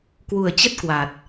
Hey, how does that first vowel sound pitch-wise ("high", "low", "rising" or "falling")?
low